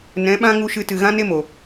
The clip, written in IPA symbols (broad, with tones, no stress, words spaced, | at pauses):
nɛ̃˨˦ɓã˦ ŋu˧ʃɨ˧tɨ˨ ɣã˦ne˦mo˨